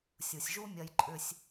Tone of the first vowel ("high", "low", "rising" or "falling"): low